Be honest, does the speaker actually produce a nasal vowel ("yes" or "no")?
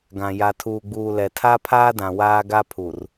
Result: yes